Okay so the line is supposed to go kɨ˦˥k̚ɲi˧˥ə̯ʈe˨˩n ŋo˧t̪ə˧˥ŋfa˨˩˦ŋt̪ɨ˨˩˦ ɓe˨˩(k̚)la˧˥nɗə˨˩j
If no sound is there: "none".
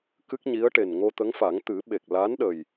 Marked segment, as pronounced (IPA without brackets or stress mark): k̚